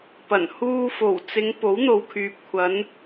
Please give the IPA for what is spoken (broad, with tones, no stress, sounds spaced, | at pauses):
p ɐ˨˩ n h uː˧ f o˨˩ w t͡s ɪ˨˧ ŋ p o˨˥ w n̪ o˨ w kʰ yː˨ p̚ kʷʰ ɐ˨˧ n